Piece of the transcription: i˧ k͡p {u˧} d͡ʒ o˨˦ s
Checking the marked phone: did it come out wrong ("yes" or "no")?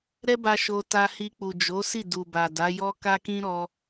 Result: yes